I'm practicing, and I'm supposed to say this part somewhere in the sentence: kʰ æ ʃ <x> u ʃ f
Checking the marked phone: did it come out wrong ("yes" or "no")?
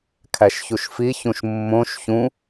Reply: yes